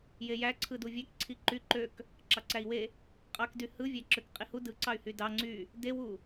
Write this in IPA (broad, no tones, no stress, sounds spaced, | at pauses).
j e j æ ǀʰ ɯ d u vʲ æ k ǀʰ i ǃ y ǃ ø k | ǁ ɑ ǀ æ i̯ w e | qʼ ɑ k d y h ɯ vʲ æ ǁ ø k qʼ i h u d ɯ ǀ ɑ y̯ h y d ɑ ŋ͡ǀ y | d e w u